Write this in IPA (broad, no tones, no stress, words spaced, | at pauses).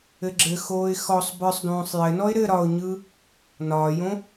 ɘɡ͡ǁɘxoːɪ̯ xɔsˤ bə˞sˤdõːsˤ jɘnɔɪ̯ ɾɘ ɾɒʊ̯ɲɯ | nɒːjõ